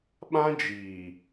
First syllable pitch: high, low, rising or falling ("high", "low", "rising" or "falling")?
high